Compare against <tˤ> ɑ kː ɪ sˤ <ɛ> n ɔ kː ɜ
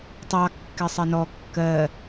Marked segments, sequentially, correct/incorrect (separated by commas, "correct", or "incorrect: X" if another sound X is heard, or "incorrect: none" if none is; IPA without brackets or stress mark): correct, incorrect: ɪ